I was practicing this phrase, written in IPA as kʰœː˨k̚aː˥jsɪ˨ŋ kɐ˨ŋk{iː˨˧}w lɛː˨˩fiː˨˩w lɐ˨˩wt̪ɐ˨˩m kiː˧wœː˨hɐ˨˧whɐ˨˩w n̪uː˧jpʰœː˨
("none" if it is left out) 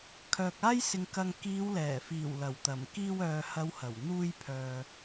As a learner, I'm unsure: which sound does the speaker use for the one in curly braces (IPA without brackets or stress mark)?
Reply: iː˨˧